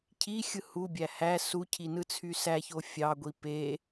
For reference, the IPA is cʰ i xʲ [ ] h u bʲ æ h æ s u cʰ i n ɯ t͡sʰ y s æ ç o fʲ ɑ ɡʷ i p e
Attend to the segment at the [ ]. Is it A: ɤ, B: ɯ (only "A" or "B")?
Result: B